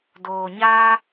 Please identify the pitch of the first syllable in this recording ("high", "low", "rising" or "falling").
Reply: low